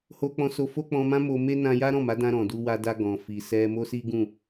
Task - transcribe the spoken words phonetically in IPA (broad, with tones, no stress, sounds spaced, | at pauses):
h o˧ k͡p ɔ̃˧ s o˧ f o˦ k͡p ɔ̃˧ m ã˦ m o˧ m e˦ n ã˧ j a˦ ɾ ɔ̃˦˨ m a˨˦ d ã˧ ɾ ɔ̃˨ d u˧ w a˧ d a˧ ɡ ɔ̃˨ f i˨ s ɛ˧ m o˦ s i˦ ɡ ũ˦˨